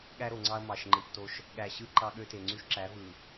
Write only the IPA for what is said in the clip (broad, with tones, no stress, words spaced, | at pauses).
ɠæ˦ɾo˨ŋ͡ǀɑ˦ɐ̯ mɑ˨ʃ ŋ͡ǃɯ˨pto˦ʃ | ɠæ˨ɕɯ˦ ǃɑ˦ɠø˦te˨ ŋ͡ǀy˦ʃǁæ˨˦ vɯ˨